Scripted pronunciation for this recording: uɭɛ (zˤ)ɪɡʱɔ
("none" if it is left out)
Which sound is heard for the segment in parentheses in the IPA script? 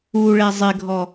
zˤ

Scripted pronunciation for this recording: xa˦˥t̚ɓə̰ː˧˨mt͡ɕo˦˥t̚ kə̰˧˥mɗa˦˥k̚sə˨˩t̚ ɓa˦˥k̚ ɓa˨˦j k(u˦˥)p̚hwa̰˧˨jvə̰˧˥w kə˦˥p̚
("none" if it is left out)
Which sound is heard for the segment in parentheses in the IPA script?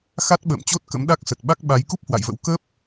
u˦˥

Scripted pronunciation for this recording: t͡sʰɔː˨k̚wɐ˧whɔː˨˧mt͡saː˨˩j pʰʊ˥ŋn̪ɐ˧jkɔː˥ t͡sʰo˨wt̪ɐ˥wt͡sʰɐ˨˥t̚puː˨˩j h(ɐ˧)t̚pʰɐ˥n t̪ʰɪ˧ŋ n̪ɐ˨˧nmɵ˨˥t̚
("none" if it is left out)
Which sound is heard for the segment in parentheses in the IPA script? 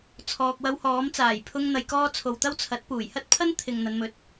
ɐ˥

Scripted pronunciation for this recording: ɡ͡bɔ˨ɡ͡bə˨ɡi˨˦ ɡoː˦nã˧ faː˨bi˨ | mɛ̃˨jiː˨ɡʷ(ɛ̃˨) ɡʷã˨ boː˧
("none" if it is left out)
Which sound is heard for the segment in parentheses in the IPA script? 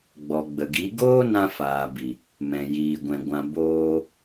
ɛ̃˨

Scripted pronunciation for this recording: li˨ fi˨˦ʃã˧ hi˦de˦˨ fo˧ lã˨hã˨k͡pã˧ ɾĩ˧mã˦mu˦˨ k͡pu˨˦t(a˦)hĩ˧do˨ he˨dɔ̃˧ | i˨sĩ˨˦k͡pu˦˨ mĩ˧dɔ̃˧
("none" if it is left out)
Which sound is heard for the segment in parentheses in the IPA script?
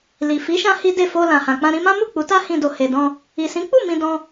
a˦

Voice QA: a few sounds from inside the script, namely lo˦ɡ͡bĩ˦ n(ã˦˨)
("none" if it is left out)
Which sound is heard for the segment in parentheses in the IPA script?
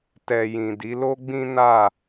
a˦˨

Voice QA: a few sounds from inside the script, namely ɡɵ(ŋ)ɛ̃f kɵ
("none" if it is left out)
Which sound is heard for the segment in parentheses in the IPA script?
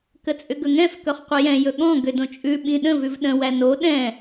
ŋ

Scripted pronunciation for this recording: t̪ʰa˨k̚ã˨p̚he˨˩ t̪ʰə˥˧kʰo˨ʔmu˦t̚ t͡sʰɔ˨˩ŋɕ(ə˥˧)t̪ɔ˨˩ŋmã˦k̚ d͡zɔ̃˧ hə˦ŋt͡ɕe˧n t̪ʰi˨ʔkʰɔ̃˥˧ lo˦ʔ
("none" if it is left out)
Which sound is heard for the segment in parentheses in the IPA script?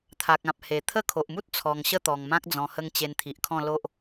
ə˥˧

